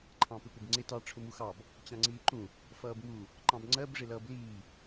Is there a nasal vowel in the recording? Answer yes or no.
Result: yes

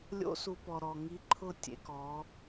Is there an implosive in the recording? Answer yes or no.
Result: no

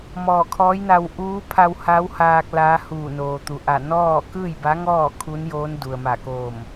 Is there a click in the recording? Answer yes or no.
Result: no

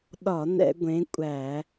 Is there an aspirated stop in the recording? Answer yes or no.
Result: no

